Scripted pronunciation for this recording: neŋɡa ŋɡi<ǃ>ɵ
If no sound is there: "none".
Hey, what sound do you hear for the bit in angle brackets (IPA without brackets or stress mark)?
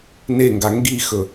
x